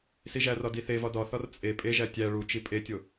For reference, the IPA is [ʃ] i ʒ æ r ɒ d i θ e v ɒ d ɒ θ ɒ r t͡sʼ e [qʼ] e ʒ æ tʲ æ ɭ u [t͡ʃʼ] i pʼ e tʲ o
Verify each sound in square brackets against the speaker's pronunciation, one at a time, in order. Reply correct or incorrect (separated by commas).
incorrect, incorrect, incorrect